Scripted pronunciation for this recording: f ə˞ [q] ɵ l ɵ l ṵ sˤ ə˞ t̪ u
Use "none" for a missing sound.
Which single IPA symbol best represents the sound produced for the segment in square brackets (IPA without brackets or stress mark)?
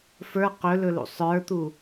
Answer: q